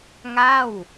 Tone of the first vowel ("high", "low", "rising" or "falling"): falling